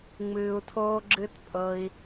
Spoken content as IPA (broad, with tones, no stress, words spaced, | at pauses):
ŋ͡mɨː˧u̯tʰoː˦ɡ͡ǁɨ˦tpʼɤ˧i̯